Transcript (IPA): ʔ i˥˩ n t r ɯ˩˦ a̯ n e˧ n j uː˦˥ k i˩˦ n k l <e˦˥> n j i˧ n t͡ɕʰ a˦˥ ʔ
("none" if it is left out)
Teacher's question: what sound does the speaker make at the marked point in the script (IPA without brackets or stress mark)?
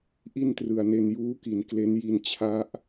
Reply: e˦˥